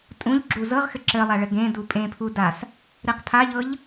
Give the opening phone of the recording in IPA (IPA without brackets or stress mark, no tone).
tʼ